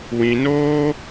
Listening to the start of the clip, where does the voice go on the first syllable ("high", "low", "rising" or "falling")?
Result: low